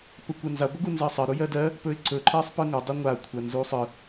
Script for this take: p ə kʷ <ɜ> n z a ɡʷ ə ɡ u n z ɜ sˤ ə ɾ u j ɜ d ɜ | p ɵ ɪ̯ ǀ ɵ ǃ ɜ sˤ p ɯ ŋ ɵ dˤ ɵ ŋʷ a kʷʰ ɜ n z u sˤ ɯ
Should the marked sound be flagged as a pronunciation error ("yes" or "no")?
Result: no